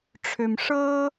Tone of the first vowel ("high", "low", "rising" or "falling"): low